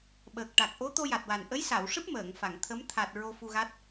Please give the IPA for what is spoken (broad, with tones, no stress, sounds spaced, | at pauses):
ɓ əː˨˩ k̚ ʈ a˨˩ k̚ ʔ o˧˥ t̪ o˧ j a˨˩ t̚ w a˨˩ n ʔ ə˧˥ j s a˨˩˨ w ʂ ɨ˦˥ p̚ m əː˨˩˨ ŋ f a˨˩˨ ŋ t̪ʰ ə˧˥ m t̪ʰ a˨˩ t̚ ɹ o˧ f u˧ ɣ a˦˥ t̚